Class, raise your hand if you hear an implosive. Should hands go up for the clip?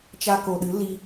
yes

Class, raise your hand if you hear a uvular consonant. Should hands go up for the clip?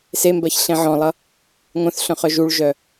yes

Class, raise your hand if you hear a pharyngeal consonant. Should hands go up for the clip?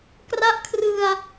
no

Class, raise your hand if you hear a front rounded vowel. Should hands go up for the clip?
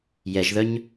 yes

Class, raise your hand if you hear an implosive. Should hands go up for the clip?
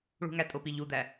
no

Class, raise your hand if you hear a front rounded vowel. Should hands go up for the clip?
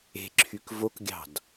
yes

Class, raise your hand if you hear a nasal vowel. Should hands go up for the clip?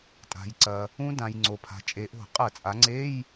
yes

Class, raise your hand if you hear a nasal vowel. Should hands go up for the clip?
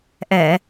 no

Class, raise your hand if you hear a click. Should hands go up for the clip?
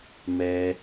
no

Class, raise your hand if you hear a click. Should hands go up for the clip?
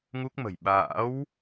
no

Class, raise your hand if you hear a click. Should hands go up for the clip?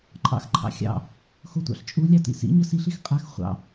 yes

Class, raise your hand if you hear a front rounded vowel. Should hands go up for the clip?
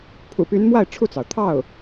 yes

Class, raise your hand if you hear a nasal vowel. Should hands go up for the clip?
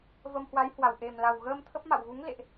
no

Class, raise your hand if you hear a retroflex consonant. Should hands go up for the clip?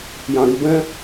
no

